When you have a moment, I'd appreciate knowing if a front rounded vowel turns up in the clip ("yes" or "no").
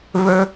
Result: yes